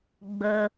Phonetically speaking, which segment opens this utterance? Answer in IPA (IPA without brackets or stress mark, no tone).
ɡ͡b